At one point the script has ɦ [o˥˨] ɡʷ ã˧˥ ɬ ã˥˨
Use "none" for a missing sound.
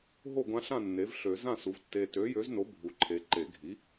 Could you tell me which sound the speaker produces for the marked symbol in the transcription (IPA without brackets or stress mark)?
o˥˨